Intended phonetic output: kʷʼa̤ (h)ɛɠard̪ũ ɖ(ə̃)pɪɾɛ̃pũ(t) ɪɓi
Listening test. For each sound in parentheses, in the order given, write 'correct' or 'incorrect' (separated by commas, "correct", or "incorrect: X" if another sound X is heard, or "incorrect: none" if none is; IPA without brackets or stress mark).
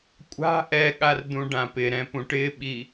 incorrect: ʔ, incorrect: ã, incorrect: ʈ